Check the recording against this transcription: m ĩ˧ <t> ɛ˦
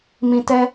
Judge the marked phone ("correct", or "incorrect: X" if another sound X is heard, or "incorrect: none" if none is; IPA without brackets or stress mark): correct